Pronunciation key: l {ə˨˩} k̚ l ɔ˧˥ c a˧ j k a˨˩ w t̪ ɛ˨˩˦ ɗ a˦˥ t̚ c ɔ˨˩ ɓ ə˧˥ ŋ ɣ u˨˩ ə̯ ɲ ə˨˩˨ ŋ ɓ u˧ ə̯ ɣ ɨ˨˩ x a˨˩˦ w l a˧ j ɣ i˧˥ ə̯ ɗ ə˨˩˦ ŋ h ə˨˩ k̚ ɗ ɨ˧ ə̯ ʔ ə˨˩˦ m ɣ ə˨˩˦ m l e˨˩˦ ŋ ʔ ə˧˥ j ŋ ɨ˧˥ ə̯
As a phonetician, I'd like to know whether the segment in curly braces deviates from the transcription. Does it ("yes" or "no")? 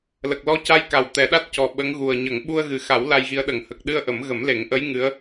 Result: no